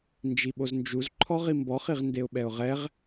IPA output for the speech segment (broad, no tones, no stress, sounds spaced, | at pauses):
n d͡ʒ i ɓ o z n d͡ʒ u z ǃʰ ɔ ʁ i m b ɔ χ i ʁ n d e ʊ̯ ɓ ɛ ʊ̯ ʁ ɛ ʁ